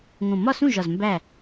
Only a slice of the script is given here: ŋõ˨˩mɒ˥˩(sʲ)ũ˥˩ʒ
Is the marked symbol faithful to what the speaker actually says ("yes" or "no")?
no